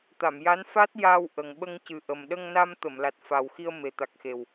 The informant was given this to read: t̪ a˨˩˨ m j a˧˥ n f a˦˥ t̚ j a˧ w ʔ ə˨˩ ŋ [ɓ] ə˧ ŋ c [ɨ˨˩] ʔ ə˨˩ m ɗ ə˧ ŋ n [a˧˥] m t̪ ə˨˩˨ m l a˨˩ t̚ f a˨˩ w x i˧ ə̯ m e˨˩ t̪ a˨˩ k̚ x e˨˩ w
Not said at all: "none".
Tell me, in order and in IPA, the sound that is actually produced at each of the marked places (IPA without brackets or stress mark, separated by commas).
ɓ, ɨ˨˩, a˧